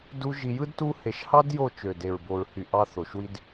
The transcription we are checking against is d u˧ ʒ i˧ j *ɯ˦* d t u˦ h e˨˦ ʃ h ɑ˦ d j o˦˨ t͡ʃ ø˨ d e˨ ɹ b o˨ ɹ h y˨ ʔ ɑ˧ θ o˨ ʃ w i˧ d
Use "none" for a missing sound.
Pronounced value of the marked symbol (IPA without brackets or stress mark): ɯ˦